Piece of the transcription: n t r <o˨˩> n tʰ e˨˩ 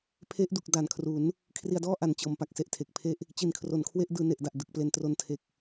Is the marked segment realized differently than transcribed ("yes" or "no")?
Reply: yes